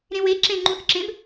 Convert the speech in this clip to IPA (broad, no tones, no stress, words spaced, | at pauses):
ɾẽwe ǁẽ ŋ͡ǃũθǁẽb